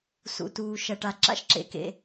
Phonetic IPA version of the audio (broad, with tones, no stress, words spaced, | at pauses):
sṵ˩tuː˩ʃɐ˩ ʈa˩ǁa̰˥ʃ ǁḛ˩kḛ˩